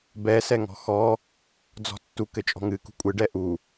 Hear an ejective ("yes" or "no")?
yes